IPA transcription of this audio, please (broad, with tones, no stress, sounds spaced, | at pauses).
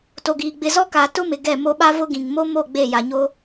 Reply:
t o˨ ɡ iː˨ ɡ͡b ɪ˨ z ɔ˦ k aː˨ t ʊ˦ m ɪ˨ ɡ ɛ˦˨ m o˦ ɓ a˦ v ʊ˦ ɡ ĩ˨ ŋ m o˦ m o˦˨ ɡ͡b e˦˨ j a˨ ɲ o˦